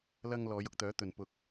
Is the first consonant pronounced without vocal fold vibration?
no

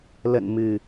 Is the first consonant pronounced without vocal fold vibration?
no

